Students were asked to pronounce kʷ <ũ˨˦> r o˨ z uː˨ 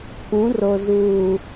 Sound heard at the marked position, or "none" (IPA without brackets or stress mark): ũ˨˦